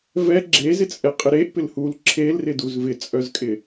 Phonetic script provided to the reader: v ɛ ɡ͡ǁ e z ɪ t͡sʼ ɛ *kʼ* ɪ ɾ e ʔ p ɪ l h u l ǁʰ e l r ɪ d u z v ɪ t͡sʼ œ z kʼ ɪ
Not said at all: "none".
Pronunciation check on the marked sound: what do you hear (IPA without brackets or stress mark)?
qʼ